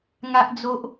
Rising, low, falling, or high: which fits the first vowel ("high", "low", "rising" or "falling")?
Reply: high